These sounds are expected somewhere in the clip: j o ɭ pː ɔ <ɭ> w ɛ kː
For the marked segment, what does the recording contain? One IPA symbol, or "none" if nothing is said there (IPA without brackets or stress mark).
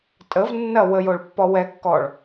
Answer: none